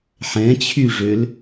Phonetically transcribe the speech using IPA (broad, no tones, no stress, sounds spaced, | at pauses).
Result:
ħ ɛ̃ t͡ɕʰ y ʐ ø l